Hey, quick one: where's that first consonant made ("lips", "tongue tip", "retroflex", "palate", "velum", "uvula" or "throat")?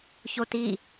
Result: palate